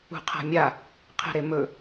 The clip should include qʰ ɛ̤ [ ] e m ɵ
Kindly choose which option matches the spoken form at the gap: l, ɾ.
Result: ɾ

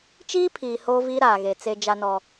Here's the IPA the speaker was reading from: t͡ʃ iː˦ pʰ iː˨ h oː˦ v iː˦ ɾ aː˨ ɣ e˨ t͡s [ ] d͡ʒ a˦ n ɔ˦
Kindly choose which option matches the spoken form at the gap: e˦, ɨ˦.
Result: e˦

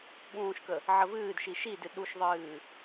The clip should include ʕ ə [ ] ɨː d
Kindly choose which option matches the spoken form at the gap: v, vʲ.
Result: v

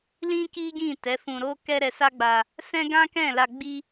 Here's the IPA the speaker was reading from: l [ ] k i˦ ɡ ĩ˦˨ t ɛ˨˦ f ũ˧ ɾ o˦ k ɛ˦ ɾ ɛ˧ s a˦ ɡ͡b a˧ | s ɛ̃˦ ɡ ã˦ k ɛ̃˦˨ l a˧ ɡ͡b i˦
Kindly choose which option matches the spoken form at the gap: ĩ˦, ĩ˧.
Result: ĩ˦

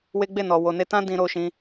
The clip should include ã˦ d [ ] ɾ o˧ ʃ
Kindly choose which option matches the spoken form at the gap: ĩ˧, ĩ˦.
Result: ĩ˧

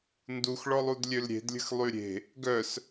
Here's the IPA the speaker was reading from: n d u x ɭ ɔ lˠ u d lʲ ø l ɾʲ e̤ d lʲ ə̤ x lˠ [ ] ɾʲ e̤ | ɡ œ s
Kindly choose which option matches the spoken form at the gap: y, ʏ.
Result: y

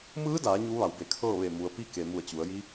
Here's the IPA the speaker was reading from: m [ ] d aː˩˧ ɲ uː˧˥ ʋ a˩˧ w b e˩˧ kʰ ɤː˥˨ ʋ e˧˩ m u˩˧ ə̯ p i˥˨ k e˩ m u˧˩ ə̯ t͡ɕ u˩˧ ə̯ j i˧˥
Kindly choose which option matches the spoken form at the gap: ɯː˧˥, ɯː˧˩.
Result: ɯː˧˥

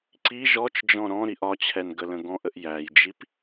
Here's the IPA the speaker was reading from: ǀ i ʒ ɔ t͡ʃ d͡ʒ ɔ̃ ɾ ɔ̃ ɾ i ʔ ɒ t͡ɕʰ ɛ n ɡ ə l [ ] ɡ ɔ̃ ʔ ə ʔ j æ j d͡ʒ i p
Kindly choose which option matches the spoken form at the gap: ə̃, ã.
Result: ə̃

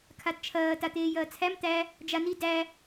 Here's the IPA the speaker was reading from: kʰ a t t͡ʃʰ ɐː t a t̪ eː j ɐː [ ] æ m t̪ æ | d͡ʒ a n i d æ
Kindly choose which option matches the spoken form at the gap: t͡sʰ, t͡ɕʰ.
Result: t͡sʰ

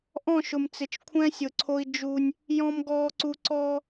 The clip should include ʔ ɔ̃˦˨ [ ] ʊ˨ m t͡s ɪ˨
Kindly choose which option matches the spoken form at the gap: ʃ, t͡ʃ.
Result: ʃ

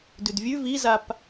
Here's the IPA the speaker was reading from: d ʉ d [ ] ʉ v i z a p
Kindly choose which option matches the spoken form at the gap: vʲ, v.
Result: vʲ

